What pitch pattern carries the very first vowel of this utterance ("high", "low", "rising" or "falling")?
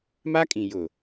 high